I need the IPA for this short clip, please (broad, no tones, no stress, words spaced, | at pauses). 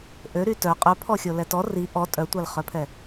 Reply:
ʔøɾy tœ qʼœpʰɔxʲo lɛtɔ ri ʔɔ tʼœtʷalχœpʰɛ